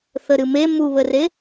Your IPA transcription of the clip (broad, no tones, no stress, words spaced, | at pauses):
θəɾɨme muβəre